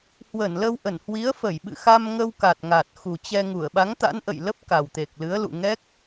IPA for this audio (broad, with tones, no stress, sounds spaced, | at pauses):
h w ə˧˩ n l ə˧ w ʔ ə˧˩ n h w i˨˦ ə̯ f ə˧˩ j ɓ ɨ̰˧˨ x a˧ m ŋ ə˧ w k a˨˩ t̚ ŋ a˨˩ t̚ x u˨˩ t͡ɕ ɛ˧ ŋ u˧˩ ə̯ ɓ a˨˦ ŋ t̪ a̰˧˥ n ʔ ə̰˧˨ j l ə˦˥ p̚ k a˨˩ w t̪ e˨˩ k̚ l ɨ˨˦ ə̯ l ṵ˧˨ ŋ ɛ˦˥ k̚